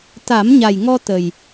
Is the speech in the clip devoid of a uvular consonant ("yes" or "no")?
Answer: yes